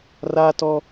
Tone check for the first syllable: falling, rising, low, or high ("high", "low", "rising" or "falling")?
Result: high